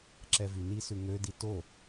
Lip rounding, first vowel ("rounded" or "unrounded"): unrounded